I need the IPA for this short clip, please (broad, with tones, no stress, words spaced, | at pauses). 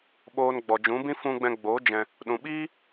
ɓoː˧n ɡ͡bɔ˨d͡ʒũ˨˦bĩ˦ fũ˧ɡ͡bɛ̃˧ɡ͡bo˨˦ d͡ʒɛ̃˧ | ɗũ˨ɓiː˦